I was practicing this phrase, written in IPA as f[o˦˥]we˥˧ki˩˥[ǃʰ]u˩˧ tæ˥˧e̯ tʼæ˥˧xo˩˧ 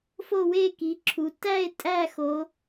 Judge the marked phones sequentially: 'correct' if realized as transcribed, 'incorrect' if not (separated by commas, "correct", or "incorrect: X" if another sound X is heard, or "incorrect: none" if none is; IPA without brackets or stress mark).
incorrect: o˥˧, incorrect: ǁʰ